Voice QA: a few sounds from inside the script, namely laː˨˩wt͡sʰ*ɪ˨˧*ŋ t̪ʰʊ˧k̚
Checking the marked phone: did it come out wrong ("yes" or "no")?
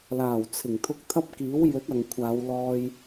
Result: yes